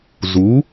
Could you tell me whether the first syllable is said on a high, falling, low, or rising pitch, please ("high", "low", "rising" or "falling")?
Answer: rising